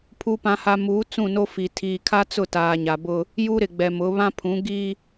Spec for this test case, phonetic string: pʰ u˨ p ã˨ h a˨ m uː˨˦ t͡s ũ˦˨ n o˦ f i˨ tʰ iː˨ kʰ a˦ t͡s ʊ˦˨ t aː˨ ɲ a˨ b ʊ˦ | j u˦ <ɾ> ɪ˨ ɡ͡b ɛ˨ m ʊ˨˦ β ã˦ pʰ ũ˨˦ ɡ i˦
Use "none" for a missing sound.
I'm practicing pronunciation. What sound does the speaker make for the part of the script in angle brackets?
ɾ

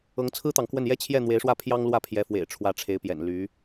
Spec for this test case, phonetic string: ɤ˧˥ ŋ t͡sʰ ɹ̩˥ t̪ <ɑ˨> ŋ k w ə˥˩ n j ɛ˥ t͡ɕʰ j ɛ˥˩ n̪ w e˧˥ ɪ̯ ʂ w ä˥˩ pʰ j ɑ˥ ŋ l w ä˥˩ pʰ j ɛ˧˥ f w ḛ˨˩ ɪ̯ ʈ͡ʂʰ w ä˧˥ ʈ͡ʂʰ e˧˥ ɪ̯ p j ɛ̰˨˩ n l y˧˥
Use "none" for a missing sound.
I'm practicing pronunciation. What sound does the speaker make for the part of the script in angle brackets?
ɑ˨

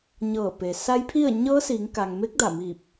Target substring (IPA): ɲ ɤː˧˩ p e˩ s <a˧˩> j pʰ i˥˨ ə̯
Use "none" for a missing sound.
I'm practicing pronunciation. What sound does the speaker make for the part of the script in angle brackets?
a˧˥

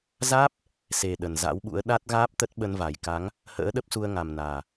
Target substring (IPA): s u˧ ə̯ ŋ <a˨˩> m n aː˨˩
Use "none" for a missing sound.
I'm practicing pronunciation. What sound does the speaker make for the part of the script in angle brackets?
a˨˩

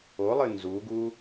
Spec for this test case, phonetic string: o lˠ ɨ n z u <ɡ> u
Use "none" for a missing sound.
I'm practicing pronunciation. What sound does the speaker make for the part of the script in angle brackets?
ɡ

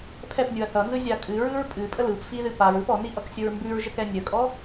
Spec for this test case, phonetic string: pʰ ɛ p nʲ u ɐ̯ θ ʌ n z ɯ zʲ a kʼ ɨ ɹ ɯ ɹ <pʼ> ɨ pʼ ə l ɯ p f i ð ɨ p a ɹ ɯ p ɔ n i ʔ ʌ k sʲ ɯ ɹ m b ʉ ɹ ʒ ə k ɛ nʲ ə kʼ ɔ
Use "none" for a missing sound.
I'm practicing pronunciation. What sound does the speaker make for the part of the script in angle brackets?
pʼ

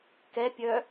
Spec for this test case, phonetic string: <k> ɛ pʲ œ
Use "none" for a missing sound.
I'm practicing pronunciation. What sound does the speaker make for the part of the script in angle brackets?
k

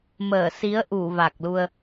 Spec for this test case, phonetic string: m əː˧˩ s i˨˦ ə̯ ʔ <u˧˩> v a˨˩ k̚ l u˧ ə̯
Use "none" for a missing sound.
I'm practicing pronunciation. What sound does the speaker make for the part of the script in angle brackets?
u˧˩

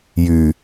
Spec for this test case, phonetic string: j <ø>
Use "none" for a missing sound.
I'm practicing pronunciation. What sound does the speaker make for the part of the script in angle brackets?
y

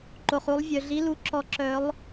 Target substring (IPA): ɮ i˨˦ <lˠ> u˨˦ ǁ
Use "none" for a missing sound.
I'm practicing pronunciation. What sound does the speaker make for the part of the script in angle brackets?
l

